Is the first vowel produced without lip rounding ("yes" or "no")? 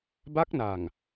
yes